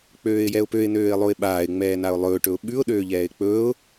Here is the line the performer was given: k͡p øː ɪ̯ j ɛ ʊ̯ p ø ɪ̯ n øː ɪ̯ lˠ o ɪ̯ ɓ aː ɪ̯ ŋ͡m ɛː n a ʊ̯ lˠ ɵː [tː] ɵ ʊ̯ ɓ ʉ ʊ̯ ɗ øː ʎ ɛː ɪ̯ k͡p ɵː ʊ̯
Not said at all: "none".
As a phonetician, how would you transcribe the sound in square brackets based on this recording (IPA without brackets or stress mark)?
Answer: ʈ